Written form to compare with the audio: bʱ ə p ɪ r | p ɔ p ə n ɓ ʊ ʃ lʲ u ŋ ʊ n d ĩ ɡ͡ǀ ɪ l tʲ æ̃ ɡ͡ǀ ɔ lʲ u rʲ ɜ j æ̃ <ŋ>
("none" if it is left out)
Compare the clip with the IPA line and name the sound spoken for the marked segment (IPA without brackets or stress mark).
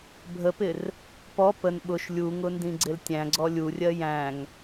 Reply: ŋ